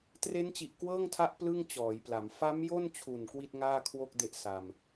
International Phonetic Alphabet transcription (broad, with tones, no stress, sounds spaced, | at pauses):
t r e˦˥ n t͡ɕ i˨˩ ʔ k w ɤː˥˩ ŋ tʰ a˦˥ ʔ p l ɯ˥˩ ŋ t͡ɕ ɔː˩˦ j p l a˩˦ m f a˦˥ m j o˥˩ n t͡ɕʰ u˨˩ n k w i˥˩ t̚ ŋ aː˥˩ kʰ w o˥˩ k̚ d e˦˥ ʔ s a˧ m